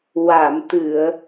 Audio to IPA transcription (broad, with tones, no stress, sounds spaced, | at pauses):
w a˨˩˨ m t̪ ɨ˨˩˨ ə̯